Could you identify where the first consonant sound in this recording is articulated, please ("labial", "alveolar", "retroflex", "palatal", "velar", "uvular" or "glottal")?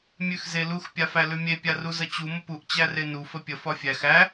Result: labial